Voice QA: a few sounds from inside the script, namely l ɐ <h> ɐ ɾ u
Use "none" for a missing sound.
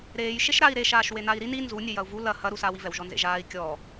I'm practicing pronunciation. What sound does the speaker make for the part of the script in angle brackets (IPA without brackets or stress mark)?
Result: h